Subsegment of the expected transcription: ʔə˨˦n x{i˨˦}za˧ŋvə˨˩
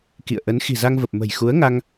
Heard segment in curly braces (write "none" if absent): i̤˨˩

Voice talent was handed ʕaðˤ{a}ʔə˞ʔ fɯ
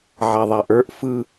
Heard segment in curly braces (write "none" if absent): a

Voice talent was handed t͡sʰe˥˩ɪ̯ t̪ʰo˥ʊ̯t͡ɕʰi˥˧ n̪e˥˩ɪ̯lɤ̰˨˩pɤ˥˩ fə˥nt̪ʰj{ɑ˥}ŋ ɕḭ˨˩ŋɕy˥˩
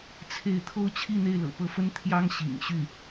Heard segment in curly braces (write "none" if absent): ɑ˥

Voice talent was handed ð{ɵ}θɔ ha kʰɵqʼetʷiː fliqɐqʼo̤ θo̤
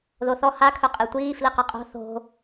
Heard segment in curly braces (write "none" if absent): o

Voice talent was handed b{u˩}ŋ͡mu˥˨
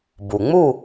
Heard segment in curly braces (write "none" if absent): u˩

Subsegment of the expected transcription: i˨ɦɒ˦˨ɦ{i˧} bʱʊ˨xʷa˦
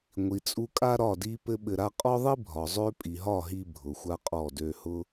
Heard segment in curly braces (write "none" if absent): i˧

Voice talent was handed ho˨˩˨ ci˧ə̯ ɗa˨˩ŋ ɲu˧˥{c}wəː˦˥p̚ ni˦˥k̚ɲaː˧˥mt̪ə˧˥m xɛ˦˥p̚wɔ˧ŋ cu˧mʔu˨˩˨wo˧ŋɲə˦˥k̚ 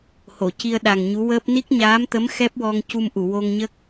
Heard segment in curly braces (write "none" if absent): none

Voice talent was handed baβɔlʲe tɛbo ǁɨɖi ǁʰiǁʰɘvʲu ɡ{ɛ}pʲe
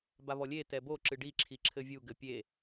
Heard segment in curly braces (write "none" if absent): ɘ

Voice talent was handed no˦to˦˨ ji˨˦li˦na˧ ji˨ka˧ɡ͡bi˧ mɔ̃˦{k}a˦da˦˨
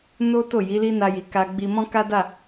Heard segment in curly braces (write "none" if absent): k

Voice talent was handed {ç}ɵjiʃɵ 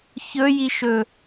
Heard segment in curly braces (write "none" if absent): ç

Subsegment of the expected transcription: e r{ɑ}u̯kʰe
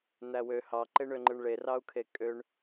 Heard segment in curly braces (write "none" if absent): ɑ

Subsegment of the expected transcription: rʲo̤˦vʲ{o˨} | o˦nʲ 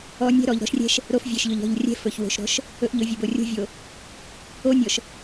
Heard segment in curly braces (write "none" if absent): o˨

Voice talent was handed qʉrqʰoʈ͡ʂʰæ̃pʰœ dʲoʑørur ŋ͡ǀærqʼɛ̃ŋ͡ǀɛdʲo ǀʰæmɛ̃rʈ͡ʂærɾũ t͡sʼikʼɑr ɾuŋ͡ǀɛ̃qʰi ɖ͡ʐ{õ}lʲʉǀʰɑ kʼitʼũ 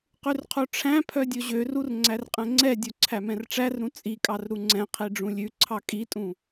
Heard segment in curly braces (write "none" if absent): ũ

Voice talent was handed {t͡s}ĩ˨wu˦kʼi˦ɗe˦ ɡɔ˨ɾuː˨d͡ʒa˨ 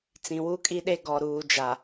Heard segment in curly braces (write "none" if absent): t͡s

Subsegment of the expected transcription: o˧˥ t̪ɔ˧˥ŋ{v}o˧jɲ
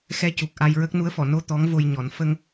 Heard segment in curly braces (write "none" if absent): v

